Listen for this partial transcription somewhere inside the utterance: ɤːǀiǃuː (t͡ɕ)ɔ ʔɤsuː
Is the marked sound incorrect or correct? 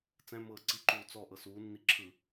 incorrect